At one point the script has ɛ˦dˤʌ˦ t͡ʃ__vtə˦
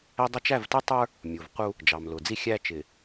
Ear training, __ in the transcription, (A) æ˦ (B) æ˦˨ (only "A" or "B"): B